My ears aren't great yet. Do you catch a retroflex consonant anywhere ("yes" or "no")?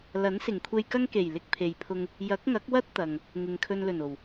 no